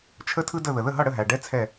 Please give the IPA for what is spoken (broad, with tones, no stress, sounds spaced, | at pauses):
t͡ʃʰ ə˥ tʰ ɯ˥ d ə˥˨ ð ə˨ ð ə˥˨ ɦ ʌ˥˨ ɽ ə˥˨ ɦ æ˨ ɖ ɛ˥ t͡sʰ ɛ˥˨